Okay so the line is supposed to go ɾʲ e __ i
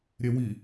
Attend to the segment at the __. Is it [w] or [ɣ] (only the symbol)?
w